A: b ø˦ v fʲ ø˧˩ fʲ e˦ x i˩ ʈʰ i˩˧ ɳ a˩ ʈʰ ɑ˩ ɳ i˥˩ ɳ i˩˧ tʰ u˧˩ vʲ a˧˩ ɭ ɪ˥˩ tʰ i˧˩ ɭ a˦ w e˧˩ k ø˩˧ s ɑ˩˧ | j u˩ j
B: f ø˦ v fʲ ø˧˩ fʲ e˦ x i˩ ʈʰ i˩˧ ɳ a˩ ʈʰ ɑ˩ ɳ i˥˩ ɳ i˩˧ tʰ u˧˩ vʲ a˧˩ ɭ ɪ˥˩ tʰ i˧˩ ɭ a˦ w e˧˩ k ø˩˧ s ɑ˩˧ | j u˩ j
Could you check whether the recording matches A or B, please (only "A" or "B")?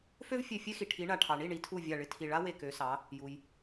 B